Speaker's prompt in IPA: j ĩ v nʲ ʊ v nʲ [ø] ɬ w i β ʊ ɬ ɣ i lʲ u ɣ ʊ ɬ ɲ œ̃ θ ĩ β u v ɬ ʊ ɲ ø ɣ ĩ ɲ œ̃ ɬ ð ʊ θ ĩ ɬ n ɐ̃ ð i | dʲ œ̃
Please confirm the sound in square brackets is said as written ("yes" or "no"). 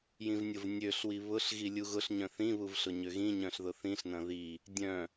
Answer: yes